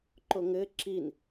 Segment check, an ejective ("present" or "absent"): absent